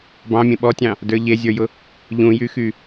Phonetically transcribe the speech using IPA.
b ɑ̃ mʲ ẽ ɓ ɔ tʲ ɑ̃ | d ə˞ ʎ e zʲ ə˞ j ʊ | ʎ ũ j y x y

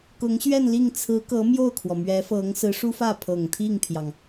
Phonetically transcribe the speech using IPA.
k ʊ˧˥ ŋ ɕ ɥ ɛ˥˧ n l i˥˩ ŋ t͡sʰ ɹ̩˧˥ k ɤ˧˥ m j o˥˩ ʊ̯ kʰ w ɔ˩ m ɥ ɛ˧˥ f ɤ˧˥ ŋ s ɹ̩˧˥ ʂ u˥ f ä˥˩ pʰ ɤ˨˩ ŋ t̪ʰ i˥˩ ŋ pʰ j ɑ˩ ŋ

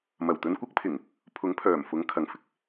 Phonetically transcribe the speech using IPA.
m ɐ˨˩ w t̪ ɵ˧ n kʷ ɐ˥ k̚ pʰ ɪ˨˩ ŋ | pʰ ʊ˨˥ ŋ pʰ œː˨˩ m f ʊ˨˥ ŋ kʰ ɐ˨ ŋ f ɪ˨ k̚

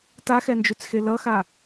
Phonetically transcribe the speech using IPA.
t a x ɛ n d͡ʒ u t͡s x e l ʌ x a

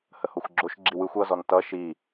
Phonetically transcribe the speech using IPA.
h ə h o xʷ ɡ͡ǁ o ʃ ɡ͡ǁ i w ɯ xʷ ʌ z ɔ n t ʌ ʃ i

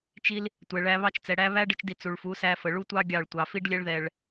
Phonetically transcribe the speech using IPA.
t͡ʃ i˧ l | tʷ ɛ˨ ɭ æ˧ β ɑ˦ t͡ʃ t͡s ɛ˨ ɽ æ˦ β æ˦ ɖ ə˧ t͡ʃ d i˨ t͡s u˨ ɭ f u˨˦ s æ˧ f ə˨ ɭ u˦ tʷ ɑ˦ ɡʲ ɑ˦˨ ɭ tʷ ɑ˨ f i˧ ɖ lʲ ɛ˧ ɭ ð ɛ˨ ɭ

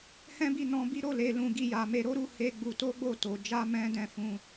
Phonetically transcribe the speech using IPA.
h ɛ̃˦ b i˦˨ n ɔ̃˧ b i˦ ɾ o˦˨ l e˨ l ũ˨ ɡ i˧ j a˨ m e˧ ɾ o˦ ɾ u˧ h e˦ ɡ͡b u˧ t o˦ ɡ͡b o˦˨ t o˨ d͡ʒ a˧ m ɛ̃˦ d ɛ̃˦˨ f ũ˧

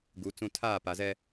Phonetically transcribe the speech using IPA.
ɡ u˨˦ t͡s ũ˦ tʰ aː˦˨ p a˨ z ɛ˦

